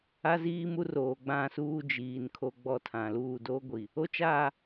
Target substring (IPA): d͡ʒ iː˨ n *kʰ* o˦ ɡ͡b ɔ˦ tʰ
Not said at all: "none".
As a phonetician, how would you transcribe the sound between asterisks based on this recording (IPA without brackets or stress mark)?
kʰ